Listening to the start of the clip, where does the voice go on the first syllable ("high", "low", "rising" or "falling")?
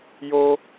high